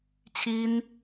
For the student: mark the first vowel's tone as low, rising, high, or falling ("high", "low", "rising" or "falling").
high